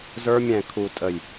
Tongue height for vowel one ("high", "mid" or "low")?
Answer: mid